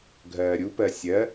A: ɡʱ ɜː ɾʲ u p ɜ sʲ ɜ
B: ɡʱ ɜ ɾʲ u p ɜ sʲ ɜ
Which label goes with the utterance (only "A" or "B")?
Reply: A